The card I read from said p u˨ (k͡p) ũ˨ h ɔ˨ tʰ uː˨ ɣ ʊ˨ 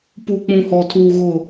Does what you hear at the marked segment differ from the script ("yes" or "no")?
no